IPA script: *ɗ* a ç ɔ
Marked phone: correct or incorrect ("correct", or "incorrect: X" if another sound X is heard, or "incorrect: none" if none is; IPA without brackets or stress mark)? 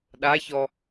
correct